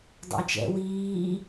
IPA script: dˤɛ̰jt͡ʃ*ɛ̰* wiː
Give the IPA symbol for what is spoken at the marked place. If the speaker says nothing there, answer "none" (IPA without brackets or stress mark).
ɛ̰